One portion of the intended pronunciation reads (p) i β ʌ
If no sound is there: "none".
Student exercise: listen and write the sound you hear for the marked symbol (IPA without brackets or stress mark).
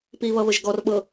p